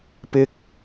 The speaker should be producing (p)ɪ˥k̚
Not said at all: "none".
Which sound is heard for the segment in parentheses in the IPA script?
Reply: p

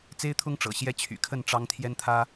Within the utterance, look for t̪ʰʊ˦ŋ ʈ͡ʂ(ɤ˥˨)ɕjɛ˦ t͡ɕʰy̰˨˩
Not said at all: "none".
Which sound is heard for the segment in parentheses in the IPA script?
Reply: ɤ̰˨˩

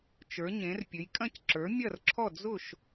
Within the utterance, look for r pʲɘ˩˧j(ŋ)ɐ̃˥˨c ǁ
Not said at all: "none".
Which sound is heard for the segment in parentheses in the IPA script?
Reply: kʼ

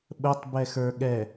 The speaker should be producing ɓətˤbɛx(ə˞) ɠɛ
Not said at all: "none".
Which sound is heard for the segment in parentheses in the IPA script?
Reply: ə˞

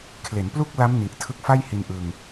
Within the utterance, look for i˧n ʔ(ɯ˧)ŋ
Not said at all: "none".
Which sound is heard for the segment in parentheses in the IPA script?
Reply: ɯ˧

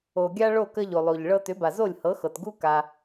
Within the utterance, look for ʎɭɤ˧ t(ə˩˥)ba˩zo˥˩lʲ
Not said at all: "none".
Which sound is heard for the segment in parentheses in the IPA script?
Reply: ʏ˩˥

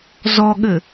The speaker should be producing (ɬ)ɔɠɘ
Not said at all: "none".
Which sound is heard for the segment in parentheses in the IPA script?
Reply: z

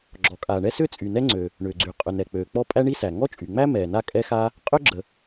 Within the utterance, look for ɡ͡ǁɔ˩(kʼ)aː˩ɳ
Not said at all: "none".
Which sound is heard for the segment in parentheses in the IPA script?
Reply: kʼ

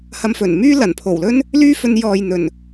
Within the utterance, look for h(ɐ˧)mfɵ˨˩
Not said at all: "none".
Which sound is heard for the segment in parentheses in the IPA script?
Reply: ɐ˧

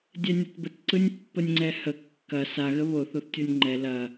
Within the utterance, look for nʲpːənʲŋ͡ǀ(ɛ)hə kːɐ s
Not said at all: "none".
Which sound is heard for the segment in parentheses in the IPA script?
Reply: ɛ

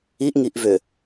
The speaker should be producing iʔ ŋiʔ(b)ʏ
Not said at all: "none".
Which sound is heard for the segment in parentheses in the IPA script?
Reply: v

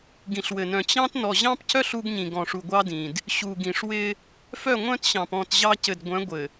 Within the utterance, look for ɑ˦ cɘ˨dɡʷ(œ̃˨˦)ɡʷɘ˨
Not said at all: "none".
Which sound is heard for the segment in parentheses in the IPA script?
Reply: œ̃˨˦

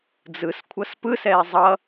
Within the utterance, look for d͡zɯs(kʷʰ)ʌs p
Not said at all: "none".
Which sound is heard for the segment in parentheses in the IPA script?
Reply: kʷʰ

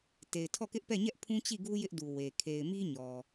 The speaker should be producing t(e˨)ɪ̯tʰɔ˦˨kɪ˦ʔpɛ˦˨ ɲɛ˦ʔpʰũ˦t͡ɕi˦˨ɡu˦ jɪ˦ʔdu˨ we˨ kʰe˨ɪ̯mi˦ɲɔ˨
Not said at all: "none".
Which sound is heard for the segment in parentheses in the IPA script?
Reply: e˨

